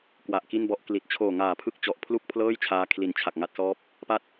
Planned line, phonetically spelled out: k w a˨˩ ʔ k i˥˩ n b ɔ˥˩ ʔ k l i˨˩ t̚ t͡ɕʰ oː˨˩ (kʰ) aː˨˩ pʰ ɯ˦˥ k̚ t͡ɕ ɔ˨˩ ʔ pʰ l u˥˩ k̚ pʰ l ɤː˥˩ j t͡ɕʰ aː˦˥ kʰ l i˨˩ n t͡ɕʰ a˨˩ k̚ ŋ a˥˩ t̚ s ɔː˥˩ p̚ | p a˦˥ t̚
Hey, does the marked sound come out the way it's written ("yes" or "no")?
no